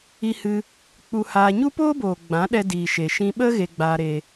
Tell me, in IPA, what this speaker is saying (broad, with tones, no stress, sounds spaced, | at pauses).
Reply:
i˧ h ɨ˧ | k͡p u˧ h aː˧ ɲ u˦ p oː˦ b oː˨ ɡ͡b ã˨˦ ɗ ɛ˧ d iː˨ ʃ e˨ ʃ ĩ˧ ɓ ə˦ ɣ e˧ ɡ͡b aː˧ ɾ e˧